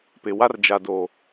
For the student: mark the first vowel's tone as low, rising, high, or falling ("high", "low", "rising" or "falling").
low